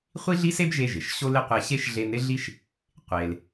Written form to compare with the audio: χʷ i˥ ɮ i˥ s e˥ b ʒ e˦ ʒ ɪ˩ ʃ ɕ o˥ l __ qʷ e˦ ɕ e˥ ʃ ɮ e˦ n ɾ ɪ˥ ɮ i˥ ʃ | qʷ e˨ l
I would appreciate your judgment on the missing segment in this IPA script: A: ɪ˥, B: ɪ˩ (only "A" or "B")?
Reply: A